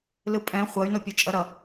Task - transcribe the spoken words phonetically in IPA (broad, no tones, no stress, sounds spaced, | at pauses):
l ɯ pʼ ɛ̃ χʷ ʌ y̯ n o pʲ u t͡ʃʼ ʌ ɾ ʌ